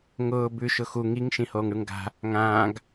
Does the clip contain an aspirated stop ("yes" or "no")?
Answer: no